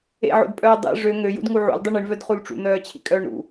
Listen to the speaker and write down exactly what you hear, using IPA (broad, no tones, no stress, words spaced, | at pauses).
ḛʕo̰dpʼœː dˤḛ ʐø ŋøjṵdŋu ʕṵldˤi ɳiɳvœdχul ʈ͡ʂṵn̪œːt͡ɕʰḭkʼœːɳ ɾṵ